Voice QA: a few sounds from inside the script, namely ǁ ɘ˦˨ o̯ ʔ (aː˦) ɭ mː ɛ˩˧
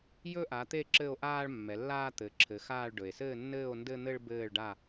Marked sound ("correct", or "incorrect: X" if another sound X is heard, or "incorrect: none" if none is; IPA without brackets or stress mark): correct